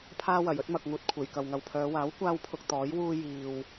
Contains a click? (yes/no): no